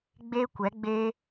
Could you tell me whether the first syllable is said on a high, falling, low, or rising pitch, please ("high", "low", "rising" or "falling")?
high